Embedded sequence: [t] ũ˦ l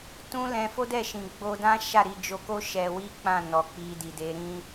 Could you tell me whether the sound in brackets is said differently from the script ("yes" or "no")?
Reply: no